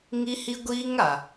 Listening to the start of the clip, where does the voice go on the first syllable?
high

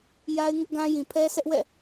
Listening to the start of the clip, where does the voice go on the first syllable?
high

